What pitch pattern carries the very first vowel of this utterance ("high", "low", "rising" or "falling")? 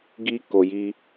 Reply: high